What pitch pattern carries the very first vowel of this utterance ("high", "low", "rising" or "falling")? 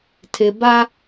low